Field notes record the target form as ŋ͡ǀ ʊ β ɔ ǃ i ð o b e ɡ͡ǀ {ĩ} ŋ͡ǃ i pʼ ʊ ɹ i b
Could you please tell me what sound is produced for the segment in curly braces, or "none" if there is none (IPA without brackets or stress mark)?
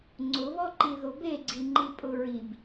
i